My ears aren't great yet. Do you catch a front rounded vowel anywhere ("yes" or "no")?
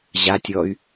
yes